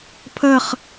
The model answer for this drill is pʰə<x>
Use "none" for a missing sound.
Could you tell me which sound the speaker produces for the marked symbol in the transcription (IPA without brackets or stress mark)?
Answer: χ